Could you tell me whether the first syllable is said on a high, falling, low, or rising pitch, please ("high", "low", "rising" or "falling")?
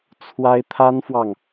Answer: high